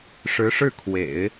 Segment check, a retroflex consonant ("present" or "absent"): present